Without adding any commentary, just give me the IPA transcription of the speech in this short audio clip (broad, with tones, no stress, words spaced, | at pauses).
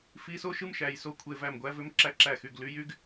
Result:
fi˧˥˧so˥ ʃɯ˥mʃæ˩˧˩jso˥˩ kʷʰe˧˥˧væ˥˩mɡʷæ˥vø˥m ǁæ˥ǁæ˥˩xy˥˩ɡ ly˧˥˧jy˥ɡ